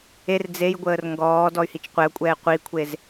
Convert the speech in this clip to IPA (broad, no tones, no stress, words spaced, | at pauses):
er d͡zejɡʷəːr ŋɡɔː dɔy̯hit͡ʃqʷɛu̯kʷʼɛː qʷikʷʰez